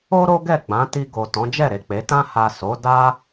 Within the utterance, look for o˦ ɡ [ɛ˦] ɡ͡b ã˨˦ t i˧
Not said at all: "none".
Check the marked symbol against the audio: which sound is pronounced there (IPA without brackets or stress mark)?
ɛ˦˨